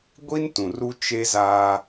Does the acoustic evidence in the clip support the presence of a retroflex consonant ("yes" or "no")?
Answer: no